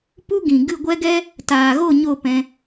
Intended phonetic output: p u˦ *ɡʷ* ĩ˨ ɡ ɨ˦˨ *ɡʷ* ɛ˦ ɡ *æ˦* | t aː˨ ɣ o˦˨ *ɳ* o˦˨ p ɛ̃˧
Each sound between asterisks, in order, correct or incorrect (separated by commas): incorrect, correct, incorrect, incorrect